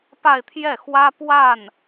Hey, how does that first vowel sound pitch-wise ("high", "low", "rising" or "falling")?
falling